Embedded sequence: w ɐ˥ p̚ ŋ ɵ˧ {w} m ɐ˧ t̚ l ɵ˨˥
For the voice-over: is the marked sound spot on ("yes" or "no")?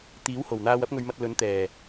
no